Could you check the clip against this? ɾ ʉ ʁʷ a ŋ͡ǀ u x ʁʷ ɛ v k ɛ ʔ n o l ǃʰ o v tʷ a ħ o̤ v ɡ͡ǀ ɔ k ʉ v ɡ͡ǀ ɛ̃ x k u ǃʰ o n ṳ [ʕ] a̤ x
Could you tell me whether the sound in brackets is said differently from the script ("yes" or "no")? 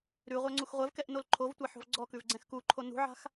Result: no